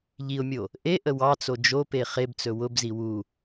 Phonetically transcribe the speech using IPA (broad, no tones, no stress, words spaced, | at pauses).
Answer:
ʎiʊ̯mʲo | ʔe ʔəwɑt͡so d͡ʒope χebt͡sɵ wʊbzi wu